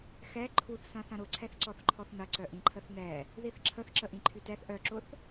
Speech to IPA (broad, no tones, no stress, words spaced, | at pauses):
xɛ ǃʰuθsɐ̃ θɐ̃ɾʊǀʰɛθǀɔθ ǃʰɔθnɐǀœ ʔĩǃʰəθnɛ | ðiθǁʰəθǁə ʔĩǃʰytɛθ ʔœǁʊθ